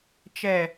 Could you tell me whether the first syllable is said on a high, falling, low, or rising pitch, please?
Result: low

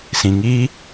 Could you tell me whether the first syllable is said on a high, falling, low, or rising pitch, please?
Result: low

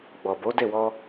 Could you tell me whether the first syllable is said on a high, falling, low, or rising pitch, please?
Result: low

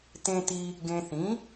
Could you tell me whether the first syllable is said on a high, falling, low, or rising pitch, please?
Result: low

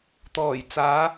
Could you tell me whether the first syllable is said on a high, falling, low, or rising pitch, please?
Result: low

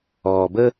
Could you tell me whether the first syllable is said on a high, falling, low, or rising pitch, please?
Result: low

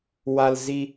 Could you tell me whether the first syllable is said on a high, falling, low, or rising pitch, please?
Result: low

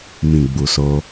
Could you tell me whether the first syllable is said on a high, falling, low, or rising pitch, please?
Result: low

